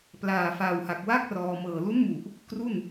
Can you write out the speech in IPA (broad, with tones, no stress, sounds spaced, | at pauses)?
p l aː˨˩ f a˨˩ w h a˨˩ k̚ w a˥˩ k̚ r ɔː˧ m ɤː˨˩ l u˦˥ n m u˨˩ ʔ | k r u˥˩ n